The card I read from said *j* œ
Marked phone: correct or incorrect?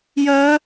correct